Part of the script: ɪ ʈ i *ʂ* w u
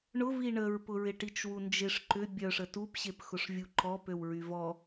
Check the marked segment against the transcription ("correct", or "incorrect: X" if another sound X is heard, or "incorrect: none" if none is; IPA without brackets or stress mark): incorrect: t͡ʃ